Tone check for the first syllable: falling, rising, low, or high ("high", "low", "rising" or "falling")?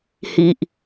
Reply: low